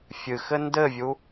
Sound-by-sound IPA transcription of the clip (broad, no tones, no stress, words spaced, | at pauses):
fʲɨxɘ ndɘvʲu